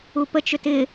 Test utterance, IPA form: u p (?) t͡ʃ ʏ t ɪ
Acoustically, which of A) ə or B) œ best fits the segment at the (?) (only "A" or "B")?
A